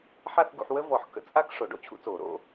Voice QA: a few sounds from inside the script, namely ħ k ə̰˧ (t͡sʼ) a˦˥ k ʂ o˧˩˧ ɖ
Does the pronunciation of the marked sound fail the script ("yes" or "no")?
no